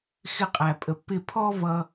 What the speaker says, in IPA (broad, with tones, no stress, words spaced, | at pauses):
xɪ˧qʼæ˨pʼə˨˦pːɪ˦˨ pʰɔ˦vʌ˧